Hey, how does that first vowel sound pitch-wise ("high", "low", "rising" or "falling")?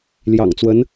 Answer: low